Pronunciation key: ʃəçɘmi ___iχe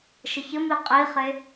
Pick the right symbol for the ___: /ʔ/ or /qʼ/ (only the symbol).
qʼ